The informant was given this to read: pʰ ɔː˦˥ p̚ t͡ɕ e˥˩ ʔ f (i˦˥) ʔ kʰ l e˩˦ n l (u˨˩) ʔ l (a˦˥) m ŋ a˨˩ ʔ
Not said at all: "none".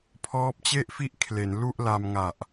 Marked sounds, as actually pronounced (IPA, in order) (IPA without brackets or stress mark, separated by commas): i˥˩, u˥˩, a˧